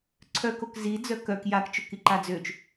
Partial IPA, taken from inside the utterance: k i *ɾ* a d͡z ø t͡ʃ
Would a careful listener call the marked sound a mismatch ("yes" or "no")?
yes